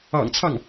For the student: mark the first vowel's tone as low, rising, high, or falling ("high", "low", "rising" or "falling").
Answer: low